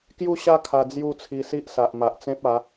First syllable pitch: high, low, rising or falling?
falling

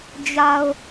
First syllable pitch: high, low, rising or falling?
low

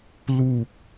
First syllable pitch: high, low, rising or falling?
low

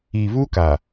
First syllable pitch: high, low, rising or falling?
low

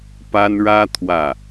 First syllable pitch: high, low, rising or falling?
high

